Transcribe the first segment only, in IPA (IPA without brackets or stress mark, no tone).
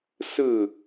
s